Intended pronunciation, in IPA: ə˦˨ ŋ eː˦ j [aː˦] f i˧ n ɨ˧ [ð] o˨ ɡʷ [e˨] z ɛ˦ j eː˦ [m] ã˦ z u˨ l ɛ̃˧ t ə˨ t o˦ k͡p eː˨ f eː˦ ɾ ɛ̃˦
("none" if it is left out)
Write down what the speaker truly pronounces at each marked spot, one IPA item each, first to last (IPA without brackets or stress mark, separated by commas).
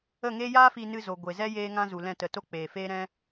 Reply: aː˦, z, e˨, ŋ